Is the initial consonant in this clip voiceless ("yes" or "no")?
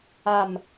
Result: no